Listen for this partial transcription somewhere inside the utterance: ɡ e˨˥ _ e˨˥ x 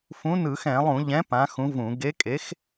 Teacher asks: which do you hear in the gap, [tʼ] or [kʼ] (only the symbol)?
kʼ